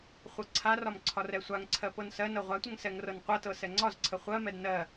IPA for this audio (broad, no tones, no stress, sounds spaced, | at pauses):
χʷ ɤ ǀʰ a r ɒ m ǀʰ ɒ r ɛ sʷ a ŋ ǀʰ ɜ p ɤ n s ɜ n ɤ ʁʷ a tʷ ə ŋ s ɛ ŋ r ɤ n qʷ ɤ t ɤ s ɛ ŋ͡ǀ ɒ z ǀʰ ə χʷ ɜ m ɛ d n ɜ